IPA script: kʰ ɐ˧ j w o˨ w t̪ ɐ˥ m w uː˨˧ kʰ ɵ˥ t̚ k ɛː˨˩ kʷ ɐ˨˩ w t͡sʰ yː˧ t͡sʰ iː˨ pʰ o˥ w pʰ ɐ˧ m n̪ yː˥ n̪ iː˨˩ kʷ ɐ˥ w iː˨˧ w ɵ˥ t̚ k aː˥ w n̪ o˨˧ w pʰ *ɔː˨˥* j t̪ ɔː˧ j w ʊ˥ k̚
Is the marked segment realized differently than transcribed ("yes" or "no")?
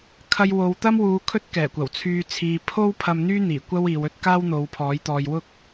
no